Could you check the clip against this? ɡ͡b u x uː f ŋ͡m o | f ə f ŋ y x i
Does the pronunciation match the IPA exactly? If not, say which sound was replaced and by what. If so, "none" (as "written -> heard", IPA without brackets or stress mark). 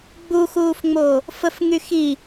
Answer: none